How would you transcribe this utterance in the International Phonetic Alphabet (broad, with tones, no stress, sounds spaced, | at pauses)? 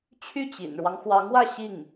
t͡ɕʰ y˥˩ t͡ɕ ḭ˨˩ n ɻ w ɑ˦ ŋ x w ɑ˧˥ ŋ w ä˥˧ ɕ i˥˩ ŋ